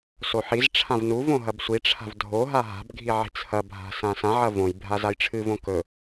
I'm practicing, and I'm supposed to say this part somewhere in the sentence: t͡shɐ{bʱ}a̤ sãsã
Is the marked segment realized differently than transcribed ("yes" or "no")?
no